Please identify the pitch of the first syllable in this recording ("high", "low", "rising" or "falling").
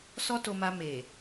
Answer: high